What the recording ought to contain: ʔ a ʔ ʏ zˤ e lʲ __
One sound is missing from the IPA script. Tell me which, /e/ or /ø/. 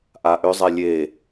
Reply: e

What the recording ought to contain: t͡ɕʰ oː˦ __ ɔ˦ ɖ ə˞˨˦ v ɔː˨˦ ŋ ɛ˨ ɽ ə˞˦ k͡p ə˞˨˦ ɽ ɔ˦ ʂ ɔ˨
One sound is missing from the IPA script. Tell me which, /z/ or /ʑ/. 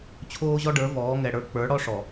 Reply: ʑ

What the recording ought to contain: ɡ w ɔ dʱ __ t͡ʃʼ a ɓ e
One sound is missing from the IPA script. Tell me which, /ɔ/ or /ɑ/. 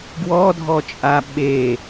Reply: ɔ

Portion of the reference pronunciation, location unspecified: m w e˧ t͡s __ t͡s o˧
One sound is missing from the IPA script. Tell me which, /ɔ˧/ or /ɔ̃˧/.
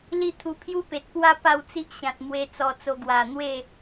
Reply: ɔ˧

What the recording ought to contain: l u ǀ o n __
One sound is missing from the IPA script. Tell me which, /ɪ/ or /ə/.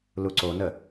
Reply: ə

